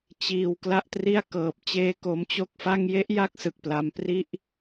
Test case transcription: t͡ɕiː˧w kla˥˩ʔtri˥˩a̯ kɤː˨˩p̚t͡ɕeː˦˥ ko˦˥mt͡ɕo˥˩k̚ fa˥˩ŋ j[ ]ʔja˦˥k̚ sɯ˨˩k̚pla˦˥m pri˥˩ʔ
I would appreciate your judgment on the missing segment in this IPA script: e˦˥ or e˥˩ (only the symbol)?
e˦˥